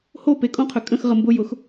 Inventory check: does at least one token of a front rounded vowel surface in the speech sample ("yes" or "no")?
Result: yes